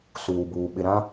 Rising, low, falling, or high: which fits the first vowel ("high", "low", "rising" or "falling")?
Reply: low